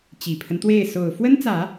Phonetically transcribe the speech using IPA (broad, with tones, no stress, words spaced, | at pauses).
t͡ɕi˨˩pʰə˦nt̪we˥˩ɪ̯ so˨˩ʊ̯ fwə˥nt͡sä˨˩˦